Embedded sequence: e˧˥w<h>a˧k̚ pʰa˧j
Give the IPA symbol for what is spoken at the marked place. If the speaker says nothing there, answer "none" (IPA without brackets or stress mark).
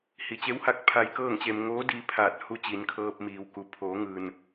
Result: h